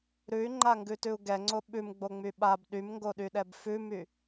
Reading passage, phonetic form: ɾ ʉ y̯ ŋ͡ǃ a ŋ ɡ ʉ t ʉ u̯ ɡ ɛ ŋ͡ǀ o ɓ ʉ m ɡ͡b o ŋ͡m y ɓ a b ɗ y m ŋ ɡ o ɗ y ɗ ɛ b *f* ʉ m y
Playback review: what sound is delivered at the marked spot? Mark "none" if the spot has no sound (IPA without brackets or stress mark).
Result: f